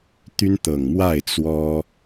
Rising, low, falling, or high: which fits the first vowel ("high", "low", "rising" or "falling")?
high